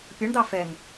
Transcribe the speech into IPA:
pʲ ʌ ɳ d̪ ɑ f ɛ ŋ

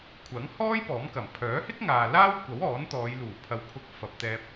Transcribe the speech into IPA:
kʷʰ ɐ˨˥ ŋ h ɔː˥ j p ɔː˨˥ m k ɐ˨˩ m pʰ œː˨˥ h ɪ˥ k̚ ŋ aː˨ l aː˥ w kʷ ɐ˨˥ w ɔː˨˥ n t̪ ɔː˨˧ j l uː˨˩ pʰ ɐ˨ w pʰ ʊ˧ k̚ f ɐ˨ p̚ t̪ ɛː˧ p̚

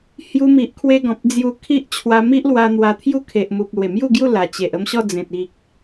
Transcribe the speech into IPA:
h j u˧ m i˨ ʔ kʰ w e˧ ɡ ɔ̃˨ p̚ d͡z j u˧ kʰ i˦ ʔ t͡ɕʰ w a˧ m i˦ ʔ l w a˧ n̪ w a˧ t̪ʰ j u˦ kʰ e˨ ʔ m u˨ p̚ l w e˨˩ m j u˥˧ ɡ j u˥˧ l a˨˩ t͡ɕ e˨ ʔ ə˧ m ɕ ɔ˥˧ d͡z ẽ˨ t̚ i˨ k̚

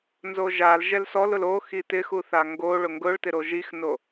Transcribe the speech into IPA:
n z o ʒ a l ʒ ɛ l s ɔ l ʊ l o x i t ɪ x u θ a ŋ ɡ o ɭ ʊ ŋ ɡ ʊ ɭ t ɪ ɾ o ʒ i x n o

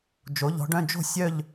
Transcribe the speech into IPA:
d͡ʒ o˨˦ ʎ ɔ̤˨˦ ɖ œ̃˧˥˧ d͡ʒ o̤˥˧ sʲ œ˥˧ ʎ

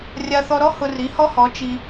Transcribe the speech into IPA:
rʲ a˧ θ ɔ˧ ɾ ɔ˦ h ʊ˧ r i˨˦ h ɔ˦ h ɔ˨˦ t͡ʃ i˧

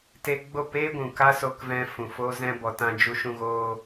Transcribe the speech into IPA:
t e˧ ɡ͡b o˦˨ p eː˦ ɡʷ ũ˨ k a˦ s o˧ k v ɛ̃˧ f ũ˨ f oː˦ z ɛ̃˦ b ɔ˧ t ã˦ d͡ʒ u˧ ʃ ũ˧ ɣ oː˦

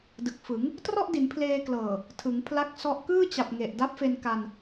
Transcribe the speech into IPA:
d ɯ˨˩ k̚ f ɯ˩˦ ŋ | t r ɔ˥˩ ʔ d i˩˦ n pʰ l eː˧ k l ɤː˨˩ | tʰ ɯ˩˦ ŋ pʰ l a˦˥ k̚ s ɔ˦˥ ʔ k ɯː˥˩ t͡ɕ a˨˩ p̚ ŋ e˨˩ ʔ d a˦˥ p̚ f e˧ n k a˧ n

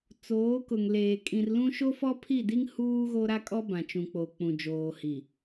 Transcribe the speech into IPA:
t͡s oː˨˦ k ʊ˨ ŋ l eː˨ kʼ ĩ˨ r l ũ˦ ʃ o˦ f ɔ˦ pʰ i˦˨ d i˦ ŋ h uː˦ ɣ o˦ ɾ a˦ kʼ ɔ˦ b ã˨ t͡ʃ ũ˨ k͡p o˨ k͡p ũ˨ d͡ʒ oː˨ h i˨

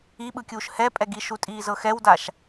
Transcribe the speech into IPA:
i ɓ ɯ kʲ uː ʃ h ɛ pʼ ɛ ɡ i ʃ u tʼ iː z ɤ x ɛ w d a ʃ

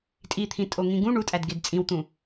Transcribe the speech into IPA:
tʼ i t̪ʰ ĩ tʼ o ŋ ĩ ɡ ũ ɳ u tʼ æ d ɡ e d t͡sʼ ĩ w t̪ ũ

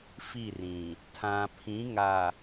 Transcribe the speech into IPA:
f i˦˨ r ĩ˨ | tʰ ã˨ pʰ ĩ˨˦ ŋ a˨

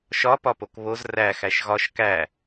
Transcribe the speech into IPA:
ʃ ɒ p ɒ p o k β o z r æ x æ ʃ ɣ ɒ ʃ k æ

